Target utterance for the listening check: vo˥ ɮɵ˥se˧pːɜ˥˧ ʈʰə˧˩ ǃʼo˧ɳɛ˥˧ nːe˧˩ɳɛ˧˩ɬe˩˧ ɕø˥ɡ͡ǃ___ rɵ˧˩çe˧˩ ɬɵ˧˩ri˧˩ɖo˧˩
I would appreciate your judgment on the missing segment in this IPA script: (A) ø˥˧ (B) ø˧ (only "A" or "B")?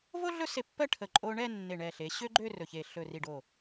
A